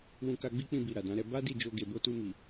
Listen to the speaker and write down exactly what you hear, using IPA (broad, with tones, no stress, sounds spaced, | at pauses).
w ũ˧ k a˧ ɡ͡b i˦ k͡p ĩ˧ b i˨ ɾ a˨ d ã˨˦ ɾ ɛ˧ b a˦ d i˦˨ d͡ʒ o˧ ɡ e˨ b o˧ t u˧ m i˨